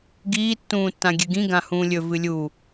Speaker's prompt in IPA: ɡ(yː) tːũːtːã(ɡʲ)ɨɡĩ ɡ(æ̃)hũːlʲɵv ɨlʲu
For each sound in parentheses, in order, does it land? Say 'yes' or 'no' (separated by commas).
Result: no, yes, no